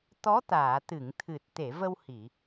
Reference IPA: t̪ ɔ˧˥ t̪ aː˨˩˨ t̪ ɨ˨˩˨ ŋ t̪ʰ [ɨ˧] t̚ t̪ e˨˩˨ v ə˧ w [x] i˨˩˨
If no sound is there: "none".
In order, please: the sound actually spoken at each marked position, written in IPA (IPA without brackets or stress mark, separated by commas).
ɨ˨˩, h